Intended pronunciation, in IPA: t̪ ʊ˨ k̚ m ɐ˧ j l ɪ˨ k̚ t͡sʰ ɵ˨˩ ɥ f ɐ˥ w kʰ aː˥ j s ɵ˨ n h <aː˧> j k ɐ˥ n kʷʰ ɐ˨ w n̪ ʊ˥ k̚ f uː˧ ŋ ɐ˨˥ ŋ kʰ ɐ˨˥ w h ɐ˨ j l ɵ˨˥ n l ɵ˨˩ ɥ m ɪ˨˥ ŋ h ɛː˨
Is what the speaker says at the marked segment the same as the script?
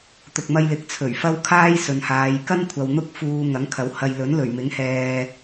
no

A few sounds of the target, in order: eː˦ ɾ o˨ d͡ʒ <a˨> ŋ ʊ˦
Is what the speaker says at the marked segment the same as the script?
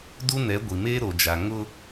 yes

